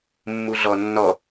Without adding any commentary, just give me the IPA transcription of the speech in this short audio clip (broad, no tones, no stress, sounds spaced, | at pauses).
mː u ɮ ɔ nː ɔ